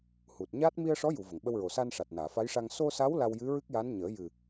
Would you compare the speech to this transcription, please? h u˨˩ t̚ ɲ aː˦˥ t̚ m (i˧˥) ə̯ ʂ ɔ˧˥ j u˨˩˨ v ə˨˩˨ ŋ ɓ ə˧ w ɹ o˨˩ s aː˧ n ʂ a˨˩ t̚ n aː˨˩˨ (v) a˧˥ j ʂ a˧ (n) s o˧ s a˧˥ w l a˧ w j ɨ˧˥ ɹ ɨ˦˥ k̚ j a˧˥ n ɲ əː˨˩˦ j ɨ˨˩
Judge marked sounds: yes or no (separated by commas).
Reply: no, no, no